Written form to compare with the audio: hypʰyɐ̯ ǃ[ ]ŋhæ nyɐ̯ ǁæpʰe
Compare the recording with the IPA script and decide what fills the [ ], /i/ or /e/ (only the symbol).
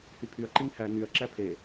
i